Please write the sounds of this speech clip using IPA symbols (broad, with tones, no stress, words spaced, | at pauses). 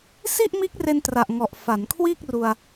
si˥˩ʔmiː˦˥k̚re˧n tra˨˩ʔŋɔ˨˩ʔ fa˩˦nkʰwiː˥˩k̚ ru˧a̯